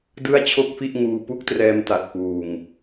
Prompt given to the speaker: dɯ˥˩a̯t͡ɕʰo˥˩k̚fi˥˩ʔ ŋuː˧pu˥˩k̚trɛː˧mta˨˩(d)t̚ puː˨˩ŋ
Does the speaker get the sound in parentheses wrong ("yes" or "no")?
yes